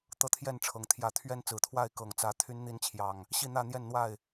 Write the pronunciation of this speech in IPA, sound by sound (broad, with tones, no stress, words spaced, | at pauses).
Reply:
t̪ɤ˦t̪ʰjɛ˥˨nʈ͡ʂʰɤ˨˩ŋ t̪ʰjä˨˦t̪ʰɥɛ˦nt͡sɹ̩˨˩t̪ʰwa˥˨ɪ̯ kɤ˨˩ŋt͡sä˨˦ t̪ʰy˨˦nn̪i˨˦nt͡ɕʰjɑ˨˩ŋ | ɕi˥˨n̪ä˥˨n̪jɛ˥˨nn̪wa˥˨ɪ̯